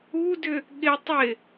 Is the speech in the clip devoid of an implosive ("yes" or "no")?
no